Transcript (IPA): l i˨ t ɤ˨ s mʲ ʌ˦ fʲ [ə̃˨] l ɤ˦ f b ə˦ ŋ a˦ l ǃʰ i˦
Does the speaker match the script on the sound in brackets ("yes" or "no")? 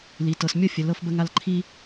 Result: no